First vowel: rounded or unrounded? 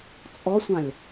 rounded